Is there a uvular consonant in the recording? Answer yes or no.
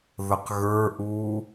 yes